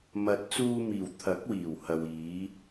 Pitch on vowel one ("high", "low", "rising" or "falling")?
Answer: rising